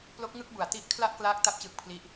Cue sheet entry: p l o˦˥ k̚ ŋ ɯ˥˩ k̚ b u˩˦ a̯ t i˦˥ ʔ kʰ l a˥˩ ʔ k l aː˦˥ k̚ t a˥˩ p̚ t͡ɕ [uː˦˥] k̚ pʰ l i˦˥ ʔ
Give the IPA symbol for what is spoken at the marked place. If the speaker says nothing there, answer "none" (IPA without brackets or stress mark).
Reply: ɯː˦˥